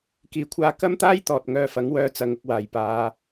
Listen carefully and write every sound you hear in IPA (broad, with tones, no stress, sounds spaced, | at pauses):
k iː˨˥ kʷʰ aː˧ k ɐ˥ m t̪ aː˥ j t̪ ɔː˨ t̚ ŋ œː˧ f ɐ˨˥ ŋ w œː˧ t͡s ɐ˨˧ ŋ ʊ˧ k̚ w aː˨˩ j p aː˨˧